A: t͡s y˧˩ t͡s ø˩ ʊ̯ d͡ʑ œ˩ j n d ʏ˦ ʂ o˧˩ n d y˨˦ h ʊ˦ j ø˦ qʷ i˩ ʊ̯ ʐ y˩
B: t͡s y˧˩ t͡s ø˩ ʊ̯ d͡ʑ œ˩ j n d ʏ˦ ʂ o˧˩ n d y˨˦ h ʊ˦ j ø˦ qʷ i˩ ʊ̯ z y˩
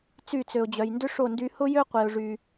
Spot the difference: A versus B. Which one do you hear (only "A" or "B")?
A